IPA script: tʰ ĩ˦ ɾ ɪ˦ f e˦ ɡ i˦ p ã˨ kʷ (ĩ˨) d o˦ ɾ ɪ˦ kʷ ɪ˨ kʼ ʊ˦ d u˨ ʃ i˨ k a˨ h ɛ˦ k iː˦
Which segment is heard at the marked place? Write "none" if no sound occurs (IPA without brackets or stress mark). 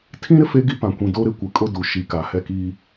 ĩ˨